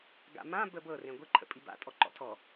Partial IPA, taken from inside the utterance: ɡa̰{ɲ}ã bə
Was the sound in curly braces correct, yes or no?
no